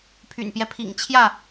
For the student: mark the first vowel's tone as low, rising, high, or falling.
low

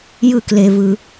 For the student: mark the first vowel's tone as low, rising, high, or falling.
falling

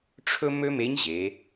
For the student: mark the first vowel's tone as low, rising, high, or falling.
high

